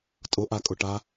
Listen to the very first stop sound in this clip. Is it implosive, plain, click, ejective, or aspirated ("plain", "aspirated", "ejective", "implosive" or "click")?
ejective